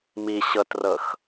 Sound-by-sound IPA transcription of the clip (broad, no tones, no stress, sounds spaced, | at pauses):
m i ɕ ɤ t r ɤ x